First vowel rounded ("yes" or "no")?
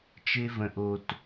no